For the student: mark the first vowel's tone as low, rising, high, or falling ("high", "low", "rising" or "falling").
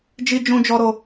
high